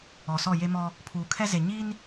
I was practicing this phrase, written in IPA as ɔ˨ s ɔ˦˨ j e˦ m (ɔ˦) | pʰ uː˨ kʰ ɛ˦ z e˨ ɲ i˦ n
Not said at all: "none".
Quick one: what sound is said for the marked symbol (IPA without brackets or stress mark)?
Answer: ɔ˦